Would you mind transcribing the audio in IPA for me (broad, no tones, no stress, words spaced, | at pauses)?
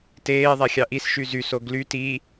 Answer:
teːðˤæ xʲɑʔis ʃyzyso ɡly ti